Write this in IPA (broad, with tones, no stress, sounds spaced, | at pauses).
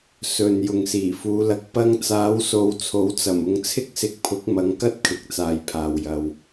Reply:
s ɵ˨ n j ʊ˨ ŋ s iː˨˩ f uː˨˧ l ɐ˧ k̚ p ɐ˧ ŋ t͡s aː˨˧ w s o˨ w t͡sʰ o˨˥ w t͡s ɐ˨˩ m ʊ˧ ŋ t͡sʰ ɪ˥ k̚ s ɪ˧ k̚ pʰ ʊ˨˥ k̚ m ɐ˨˧ ŋ k ɐ˥ t̚ kʰ ɪ˧ k̚ t͡s aː˨ j pʰ aː˨ w j ɐ˧ w